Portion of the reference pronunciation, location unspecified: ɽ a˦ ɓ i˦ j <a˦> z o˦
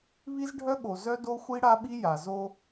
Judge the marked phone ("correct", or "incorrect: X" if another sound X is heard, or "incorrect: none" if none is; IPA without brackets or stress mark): incorrect: a˨